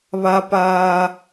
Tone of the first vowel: low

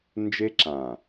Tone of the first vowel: high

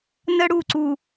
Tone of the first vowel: high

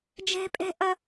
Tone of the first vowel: high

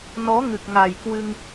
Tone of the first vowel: rising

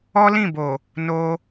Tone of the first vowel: high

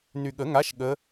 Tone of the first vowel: low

